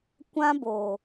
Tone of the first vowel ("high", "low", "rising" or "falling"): high